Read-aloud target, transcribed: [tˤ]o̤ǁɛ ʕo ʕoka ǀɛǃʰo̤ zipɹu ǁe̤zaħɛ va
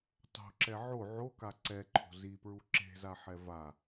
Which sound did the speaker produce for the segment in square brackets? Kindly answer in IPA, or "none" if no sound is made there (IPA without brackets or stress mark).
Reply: tˤ